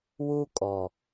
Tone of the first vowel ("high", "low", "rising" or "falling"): high